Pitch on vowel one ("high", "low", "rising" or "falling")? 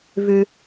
low